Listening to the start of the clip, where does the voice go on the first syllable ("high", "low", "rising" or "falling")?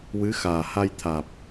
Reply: rising